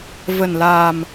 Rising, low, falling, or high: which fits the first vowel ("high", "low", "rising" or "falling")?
low